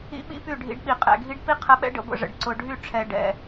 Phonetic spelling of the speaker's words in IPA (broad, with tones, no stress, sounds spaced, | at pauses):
ḭ˦ ɓ ḭ˦ p y˦˨ ɖʱ ḭ˧ ɖ ɓ i˨ qʼ ɛ̰˨ ɡʱ i˦ ɖ p i˦ qʰ ə˨˦ ɓ ɛ̰˦ ɖ ə̰˧ ɡʷ ə̰˦˨ ʐ ə̰˨ ɖ ǀ ʊ˨ ɖʱ y˦˨ ʈ͡ʂʰ ɛ˨ ɖ ɛ̰˨